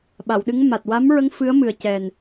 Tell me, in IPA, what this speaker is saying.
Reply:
ɓa˨˩˨wɗɨ˧˥ŋma˨˩t̚ wa˧˥mɹə˧˥ŋ fɨ˧˥ə̯mɨ˨˩ə̯cɛ˨˩n

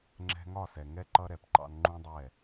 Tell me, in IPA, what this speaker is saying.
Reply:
ŋ͡ǁɛ̤˦ ŋɒ˦˨sɛ˨ŋɛ˦ ǃʌ˦ɾɛ˨pǃɑ̰˦n ŋ͡ǃũ˦dˤɛ˦˨

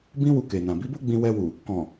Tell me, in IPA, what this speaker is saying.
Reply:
bĩ˦wu˧ke˨nã˨ bi˨˦bo˦ ɡ͡bĩ˧wɛ˧wu˨ | kɔ̃˨

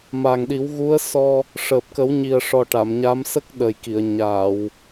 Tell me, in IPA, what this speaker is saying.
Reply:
ma˨˩ŋɗi˨˩˦wɣu˧˥ə̯sɔ˧ | ʂəː˨˩p̚kə˨˩˦wɲi˨˩ə̯ʂɔ˨˩ ʈa˨˩˨mɲa˧˥m sə˦˥k̚ɗə˨˩jki˨˩˨ə̯ ɲaː˨˩˨w

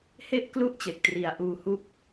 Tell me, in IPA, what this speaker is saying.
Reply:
he˥˩ʔklu˥˩ʔt͡ɕe˨˩k̚tri˨˩a̯ ʔuː˧ hu˥˩k̚

